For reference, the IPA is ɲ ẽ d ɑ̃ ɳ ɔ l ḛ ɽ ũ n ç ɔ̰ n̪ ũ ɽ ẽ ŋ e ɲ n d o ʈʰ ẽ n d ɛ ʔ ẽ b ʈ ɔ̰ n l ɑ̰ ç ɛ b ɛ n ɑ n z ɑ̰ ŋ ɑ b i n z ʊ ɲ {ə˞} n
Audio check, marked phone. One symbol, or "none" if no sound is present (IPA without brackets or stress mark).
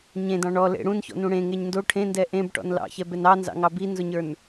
ə˞